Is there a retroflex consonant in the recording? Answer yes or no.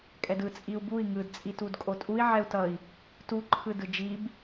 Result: no